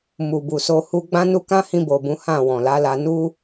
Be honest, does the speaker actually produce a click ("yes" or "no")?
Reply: no